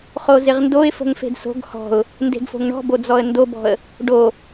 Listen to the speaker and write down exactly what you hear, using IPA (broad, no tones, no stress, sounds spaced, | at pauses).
χ o z ɪ ʁ n d o ɪ̯ f ə̤ ŋ f e̤ d s o̤ ɡ h ɔ̤ ʊ̯ | n d e̤ ɡ f o̤ ŋ ɳ ɔ̤ b o d͡z ɔ ə̯ n d o b ɔ̤ ə̯ | ɖ o